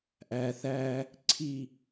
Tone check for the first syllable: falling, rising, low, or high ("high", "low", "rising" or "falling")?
low